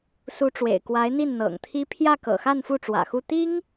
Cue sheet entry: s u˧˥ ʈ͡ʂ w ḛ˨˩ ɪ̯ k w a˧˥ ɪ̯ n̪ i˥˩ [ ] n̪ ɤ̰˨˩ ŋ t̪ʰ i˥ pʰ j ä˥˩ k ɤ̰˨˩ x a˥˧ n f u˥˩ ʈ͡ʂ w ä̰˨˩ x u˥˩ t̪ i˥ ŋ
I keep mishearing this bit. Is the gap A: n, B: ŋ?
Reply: A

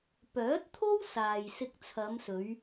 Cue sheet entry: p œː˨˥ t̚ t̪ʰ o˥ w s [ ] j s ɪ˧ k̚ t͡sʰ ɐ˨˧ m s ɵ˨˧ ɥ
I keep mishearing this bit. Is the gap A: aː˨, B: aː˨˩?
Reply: A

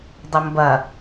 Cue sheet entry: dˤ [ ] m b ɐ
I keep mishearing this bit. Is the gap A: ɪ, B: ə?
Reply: B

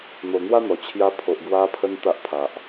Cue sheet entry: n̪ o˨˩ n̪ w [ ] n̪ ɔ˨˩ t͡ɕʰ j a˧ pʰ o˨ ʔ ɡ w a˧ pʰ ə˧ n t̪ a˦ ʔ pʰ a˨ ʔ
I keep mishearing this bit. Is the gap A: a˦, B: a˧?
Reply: A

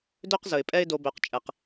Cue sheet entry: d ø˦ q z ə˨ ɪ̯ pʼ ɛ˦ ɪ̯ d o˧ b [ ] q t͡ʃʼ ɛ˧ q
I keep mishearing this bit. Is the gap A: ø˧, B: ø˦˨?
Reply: A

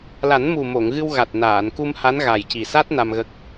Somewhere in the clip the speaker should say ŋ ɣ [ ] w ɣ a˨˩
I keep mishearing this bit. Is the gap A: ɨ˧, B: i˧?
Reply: A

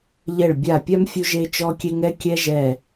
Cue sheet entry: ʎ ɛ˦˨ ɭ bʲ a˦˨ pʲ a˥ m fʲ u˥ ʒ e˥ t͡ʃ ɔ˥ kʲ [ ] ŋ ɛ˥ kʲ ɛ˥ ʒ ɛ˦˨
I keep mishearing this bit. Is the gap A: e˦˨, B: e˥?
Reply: B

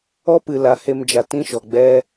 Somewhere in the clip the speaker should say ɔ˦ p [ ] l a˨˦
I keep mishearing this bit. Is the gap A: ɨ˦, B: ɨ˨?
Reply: B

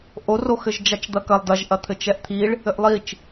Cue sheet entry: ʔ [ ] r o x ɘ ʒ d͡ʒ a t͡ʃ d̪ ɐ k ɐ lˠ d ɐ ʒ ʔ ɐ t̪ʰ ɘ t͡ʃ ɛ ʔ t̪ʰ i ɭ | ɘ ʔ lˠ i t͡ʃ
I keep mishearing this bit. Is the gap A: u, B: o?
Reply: B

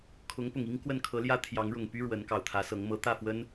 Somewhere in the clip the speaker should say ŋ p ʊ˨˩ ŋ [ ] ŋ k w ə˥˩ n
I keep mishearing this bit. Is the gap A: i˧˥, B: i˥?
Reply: B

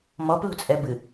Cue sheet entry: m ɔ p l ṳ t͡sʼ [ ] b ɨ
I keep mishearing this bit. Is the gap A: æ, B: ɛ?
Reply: B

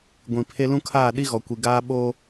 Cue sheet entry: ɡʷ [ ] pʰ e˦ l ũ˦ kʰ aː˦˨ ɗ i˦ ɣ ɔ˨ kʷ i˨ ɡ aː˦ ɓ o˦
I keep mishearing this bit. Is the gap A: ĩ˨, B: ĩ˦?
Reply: A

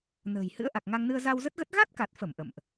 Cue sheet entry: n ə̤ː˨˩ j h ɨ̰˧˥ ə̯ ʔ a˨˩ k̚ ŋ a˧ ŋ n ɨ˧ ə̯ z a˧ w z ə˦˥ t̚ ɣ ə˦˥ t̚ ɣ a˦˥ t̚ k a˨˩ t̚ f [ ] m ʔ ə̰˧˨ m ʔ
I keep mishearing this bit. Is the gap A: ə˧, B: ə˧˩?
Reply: B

